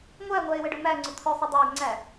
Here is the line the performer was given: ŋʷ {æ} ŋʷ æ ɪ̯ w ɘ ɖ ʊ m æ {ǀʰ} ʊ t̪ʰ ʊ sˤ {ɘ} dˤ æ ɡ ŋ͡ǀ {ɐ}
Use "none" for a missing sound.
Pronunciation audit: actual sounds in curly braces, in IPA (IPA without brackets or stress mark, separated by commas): æ, ŋ͡ǀ, ɘ, æ